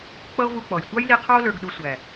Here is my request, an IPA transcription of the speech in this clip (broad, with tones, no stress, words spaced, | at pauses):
k͡pʌ˦o̯vu˧k͡pɔ˨j tʷɑ˦jli˧qʰɑ˦o̯ lə˞˧ɡ ɗu˧ sʷæ˨